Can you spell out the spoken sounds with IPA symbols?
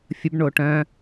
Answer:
fʲ ə b ɳ o ʈ œ̃

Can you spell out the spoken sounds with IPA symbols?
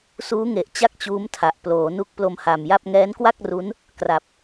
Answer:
s uː˦˥ ŋ e˨˩ ʔ t͡ɕ a˥˩ k̚ t͡ɕ uː˦˥ m tʰ a˨˩ ʔ p l oː˩˦ n u˦˥ k̚ p l o˧ m h a˨˩ m j a˥˩ p̚ ŋ ɛː˦˥ n k w a˥˩ k̚ r u˦˥ n | k r a˨˩ p̚

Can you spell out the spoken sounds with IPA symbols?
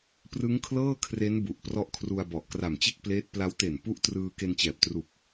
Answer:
p r ɯ˦˥ ŋ kʰ l ɤː˥˩ kʰ r e˦˥ n b u˨˩ ʔ p r ɔ˦˥ ʔ kʰ r u˧ a̯ b ɔ˨˩ ʔ k r a˨˩ m t͡ɕ e˥˩ k̚ p l eː˦˥ t̚ p l a˦˥ w t e˨˩ n p u˦˥ ʔ t r ɯː˧ k e˧ n t͡ɕ ɛː˨˩ p̚ t r u˨˩ k̚

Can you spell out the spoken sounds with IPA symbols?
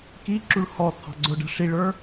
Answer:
k i ǁ u ɭ h ɔ t̪ʰ ɑ̤ ɡ͡ǀ ʊ ɖ ə̤ ʂ i ɭ ə˞

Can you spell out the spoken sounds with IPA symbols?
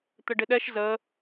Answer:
t̪ ə ɖ ɪ ɗ ɛ ʃ z ə

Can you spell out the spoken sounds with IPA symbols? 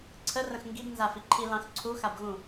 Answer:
ǀʰ ə r ə̃ x ŋ ɡ i b n z a f i ǃʰ i l ɑ̃ x ǀʰ u x a b ɣ ũ

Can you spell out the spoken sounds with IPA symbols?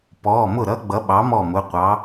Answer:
p ɔː˩˧˩ m ʊ˥˩ ɾ ʌ˦˥ ɡ͡b ʌ˨˥ ɓ ɑ˨˥ m ɔ˥˩ m ʊ˩˧˩ qʷ ɑ˨˥

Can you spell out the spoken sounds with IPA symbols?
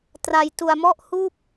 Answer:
t r a˧ j t u˧ a̯ m ɔ˥˩ ʔ h uː˥˩ p̚

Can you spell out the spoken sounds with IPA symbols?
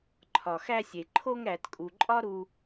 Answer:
ǃʰ ɒ˩ x æ˧ sʲ e˩ ǃʰ o˧ ŋ ɾ æ˩ t kʼ u˩ ǃʼ ɒ˥ ɾ u˧

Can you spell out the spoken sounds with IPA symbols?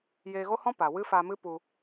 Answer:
j eː˧ ɣ o˦ h ɔ̃˦ p a˨ w ɨ˦ f a˧ m ɨ˦ p u˧

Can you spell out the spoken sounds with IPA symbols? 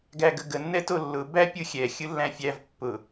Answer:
ɡ æ ɡ ə ɡ ə nː ɛ t o lː ʊ b æ pʲ ɯ xʲ ɛ xʲ ɯ lː æ̃ fʲ æ v pː ʊ

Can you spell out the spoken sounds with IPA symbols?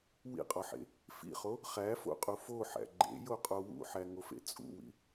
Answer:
w ḭ qʼ ɒ ħ ḛ | f ḭ χ o | χ æ f o̰ qʼ u f o ħ æ̰ ɡ͡ǃ ḛ j o qʼ o w ṵ ħ æ ŋ o f ḛ t͡sʼ ṵ w ḭ

